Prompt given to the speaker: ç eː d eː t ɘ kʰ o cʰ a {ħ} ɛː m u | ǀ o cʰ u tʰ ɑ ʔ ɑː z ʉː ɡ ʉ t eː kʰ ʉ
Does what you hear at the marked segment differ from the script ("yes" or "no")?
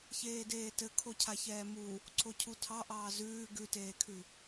yes